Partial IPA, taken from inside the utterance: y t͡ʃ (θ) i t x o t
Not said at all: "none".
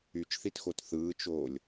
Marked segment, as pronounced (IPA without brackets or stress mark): θ